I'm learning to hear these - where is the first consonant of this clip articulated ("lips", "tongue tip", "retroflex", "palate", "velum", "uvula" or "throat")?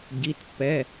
palate